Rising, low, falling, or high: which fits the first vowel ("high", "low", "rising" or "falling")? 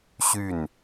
falling